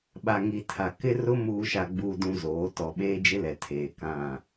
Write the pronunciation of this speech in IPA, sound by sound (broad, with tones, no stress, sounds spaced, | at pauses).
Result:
ɓ a˨ ŋ i˨ tʰ a˨ k ɪ˦ r ʊ˦ m uː˨ ʃ a˨ ɡ͡b uː˨ d ũ˨ z oː˨˦ t ɔ˨ ɓ eː˦ d͡ʒ ɪ˦ l ɛ˨ tʰ eː˨ k ã˦˨